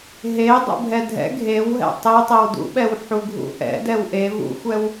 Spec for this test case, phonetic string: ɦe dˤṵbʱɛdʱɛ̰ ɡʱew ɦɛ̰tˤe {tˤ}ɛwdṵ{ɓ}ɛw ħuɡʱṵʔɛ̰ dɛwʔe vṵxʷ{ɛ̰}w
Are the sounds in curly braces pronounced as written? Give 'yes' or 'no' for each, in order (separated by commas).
yes, yes, no